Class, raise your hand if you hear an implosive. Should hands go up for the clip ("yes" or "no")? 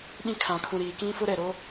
yes